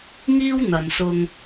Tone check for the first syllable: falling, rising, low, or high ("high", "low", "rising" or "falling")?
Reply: high